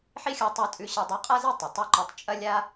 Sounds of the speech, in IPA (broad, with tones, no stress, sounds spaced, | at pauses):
ħ i˥ xʲ u˧ tˤ ʉ˧ tʼ ʉ˧ ɕ ɐ˧ dˤ u˧ qʼ a˥ z e˥ tˤ ɐ˩ tˤ ɐ˥ ǃ o˧ tˤ t͡ʃʼ ɐ˥ lʲ a˥